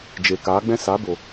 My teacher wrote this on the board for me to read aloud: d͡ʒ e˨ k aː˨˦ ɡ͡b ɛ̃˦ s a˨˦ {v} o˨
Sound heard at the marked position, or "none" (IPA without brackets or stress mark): b